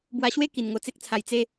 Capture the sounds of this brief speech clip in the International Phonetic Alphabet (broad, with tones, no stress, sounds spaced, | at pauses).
b w a˧ ɕ w e˦ k i˧ n ŋ o˧ t͡s e˦ k̚ t͡sʰ a˧ j t͡s e˧